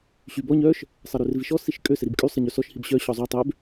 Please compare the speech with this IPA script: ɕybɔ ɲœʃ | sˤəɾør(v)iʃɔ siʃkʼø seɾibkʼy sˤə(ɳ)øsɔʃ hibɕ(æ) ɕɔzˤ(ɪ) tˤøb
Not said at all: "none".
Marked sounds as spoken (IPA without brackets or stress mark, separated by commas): v, ɲ, œ, y